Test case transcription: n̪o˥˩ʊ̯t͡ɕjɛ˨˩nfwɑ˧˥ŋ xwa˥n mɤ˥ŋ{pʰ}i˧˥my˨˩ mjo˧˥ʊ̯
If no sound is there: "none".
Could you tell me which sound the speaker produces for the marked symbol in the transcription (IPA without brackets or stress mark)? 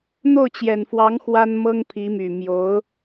pʰ